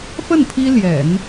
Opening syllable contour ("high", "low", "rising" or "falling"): falling